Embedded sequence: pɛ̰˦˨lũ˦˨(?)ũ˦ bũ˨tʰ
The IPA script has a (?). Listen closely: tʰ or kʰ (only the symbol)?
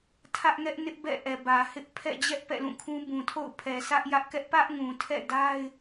kʰ